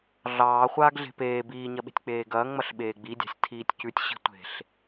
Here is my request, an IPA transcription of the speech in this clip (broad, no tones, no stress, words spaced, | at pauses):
ɮɑː χʷaːɡɮe̤peː biːɲɐɓe̤tʲ k͡peːɡɐːŋŋ͡mɐɬ ɓeːɡ͡bidʲa̤sʲ tʰiːtʲcʉtʲɕi̤ tʷe̤ɬ